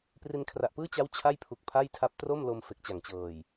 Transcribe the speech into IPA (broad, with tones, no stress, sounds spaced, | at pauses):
p r i˧ n kʰ r a˨˩ ʔ p ɯː˥˩ t͡ɕ a˦˥ w t͡ɕʰ a˥˩ j pʰ u˨˩ k̚ pʰ a˥˩ j tʰ a˦˥ p̚ t r o˥˩ m l o˧ m f e˨˩ k̚ t͡ɕ a˨˩ ŋ t͡ɕ ɤː˨˩ j